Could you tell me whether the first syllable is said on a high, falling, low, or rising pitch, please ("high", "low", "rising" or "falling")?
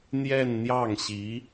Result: falling